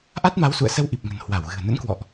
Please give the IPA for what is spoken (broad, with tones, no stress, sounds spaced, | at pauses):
ʔ a˦˥ t̚ m a˨˦ w s ṵ˧˨ ə̯ s ə˧ w ʔ i˨˩ p̚ ŋ ə̤˨˩ n h w a˧˩ w ɣ ɨ̤˨˩ ə̯ n ə̰˧˥ n k w ɔ̰˧˨ ʔ